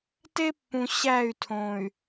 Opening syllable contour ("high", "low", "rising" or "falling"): high